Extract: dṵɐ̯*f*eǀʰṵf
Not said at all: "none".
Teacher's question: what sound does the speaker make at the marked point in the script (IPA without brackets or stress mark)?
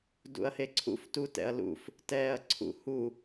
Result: h